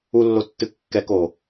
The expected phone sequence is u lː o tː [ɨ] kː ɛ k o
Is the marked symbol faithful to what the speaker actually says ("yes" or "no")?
yes